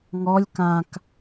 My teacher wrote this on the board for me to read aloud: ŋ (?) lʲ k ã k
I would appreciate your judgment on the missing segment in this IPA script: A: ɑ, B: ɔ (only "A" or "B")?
B